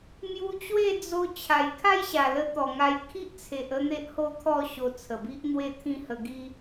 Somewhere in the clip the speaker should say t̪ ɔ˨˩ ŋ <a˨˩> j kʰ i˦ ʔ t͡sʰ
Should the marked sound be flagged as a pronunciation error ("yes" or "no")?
yes